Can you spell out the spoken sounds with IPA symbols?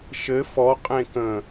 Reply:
ʃɘ fɔ qʼẽkə̃

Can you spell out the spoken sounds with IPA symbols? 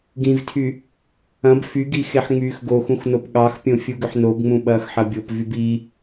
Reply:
ɡĩvtʰy | ɐ̃b fyɡi xeħŋ͡myːxɡoxũx nopɠɑxpʲõ fʲuɡʏħnobŋ͡mũ ɓɐːxħɐbʲopvyb i

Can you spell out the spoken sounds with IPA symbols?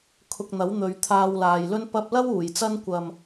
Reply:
kʰʊ˧k̚n̪ɐ˨˥w n̪ɵ˨˧ɥt̪ʰaː˧wlaː˨jlɵ˥n pɐ˧p̚lɐ˥w uː˨˩jt͡sɐ˥n kʷɐ˨m

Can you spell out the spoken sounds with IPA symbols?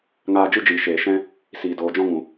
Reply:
ŋaː˧d͡ʒɨ˦d͡ʒiː˨ʃeː˨ ʃɛ̃˦ | siː˨doː˨d͡ʒɔ̃˦ŋũ˨

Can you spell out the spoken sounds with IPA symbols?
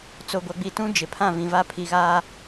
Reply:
t͡so˨ɡʷa˨ɡ͡bi˨tũ˦ d͡ʒɪ˨˦ pʰã˦˨vĩ˨va˦ pʰi˨ɣaː˦

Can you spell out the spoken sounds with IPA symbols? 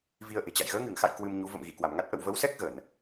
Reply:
vi˧ə̯ʔe̤˨˩t͡ɕa̰˧˨j ɣəː˨˦ŋɨ˧˩ŋxa̰˧˨j kwɨ˧mɲu˨˦ və̰˧˨m ɣi˧˩ kwa˧˩mŋa˦˥t̚ ʔə̰˧˨wvə˨˦wsɛ˦˥k̚ ɣə˧˩˨n

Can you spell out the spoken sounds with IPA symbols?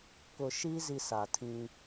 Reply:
kʊ˨ʃiː˦ zi˨ sa˨tʰĩ˦

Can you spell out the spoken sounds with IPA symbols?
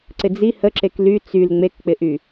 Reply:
ǀɪd͡zi həǁek ly t͡syl ŋ͡mekk͡pɪʔy

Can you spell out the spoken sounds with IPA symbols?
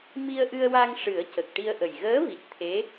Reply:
mi˧ə̯ʔɨ˧ə̯wa˧ŋ ʂɨ˨˩˦ə̯cə˨˩k̚ ʈi˧ə̯ʔə˨˩j ɣəː˧˥vi˨˩t̚ t̪ʰe˧˥

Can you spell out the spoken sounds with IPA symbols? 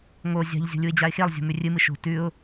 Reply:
ŋo zʲa̤ʎ zʲo̤lʲuɪ̯d͡ʑaɪ̯xelˠ zʲo̤mʉrʲɨmɨ ʃo̤ tʉʊ̯

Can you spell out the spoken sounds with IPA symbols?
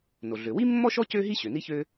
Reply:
no˩ɮø˩ wi˥mːɔ˥ʃɔ˥ cø˥ɦi˥ ɕø˩ni˥çø˥

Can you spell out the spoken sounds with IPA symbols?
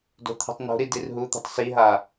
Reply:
do̤t̪ʰi̤tˤno̤ɾi dirɦut̪i̤tˤ siɦa

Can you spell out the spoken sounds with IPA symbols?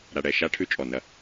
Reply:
ɾa˨ɽɛ˦˨ ʃa˦ʈʰʉ˦ t͡ʃʼɔ˨nɐ˦

